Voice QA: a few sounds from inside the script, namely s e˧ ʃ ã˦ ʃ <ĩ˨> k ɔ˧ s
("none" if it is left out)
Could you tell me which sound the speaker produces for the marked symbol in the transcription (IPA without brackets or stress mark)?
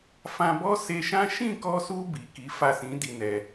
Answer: ĩ˦˨